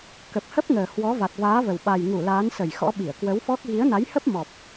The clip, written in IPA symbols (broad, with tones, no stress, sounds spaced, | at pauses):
k ə˨˩ p̚ h ə˦˥ p̚ ŋ əː˨˩ h w ɔ˨˦ v a˨˩ t̚ v aː˨˦ v ə˨˩ w ɓ a˨˩ j ŋ u˧˩ l aː˨˦ n s ə˧˩ j x ɔ̰˧˥ ɓ i˧˩ ə̯ k w ə˨˦ w f ɔ˦˥ k̚ ɣ i˨˦ ə̯ n a˨˦ j h ə˦˥ p̚ m ɔ˨˩ p̚